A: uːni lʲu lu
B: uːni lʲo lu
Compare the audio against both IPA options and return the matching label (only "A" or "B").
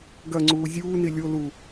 B